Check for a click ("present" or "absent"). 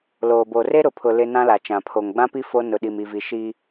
absent